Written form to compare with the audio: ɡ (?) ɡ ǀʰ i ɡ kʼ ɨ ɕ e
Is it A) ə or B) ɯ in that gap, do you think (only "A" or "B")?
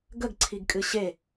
A